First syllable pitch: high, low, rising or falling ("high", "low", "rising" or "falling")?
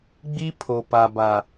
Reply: high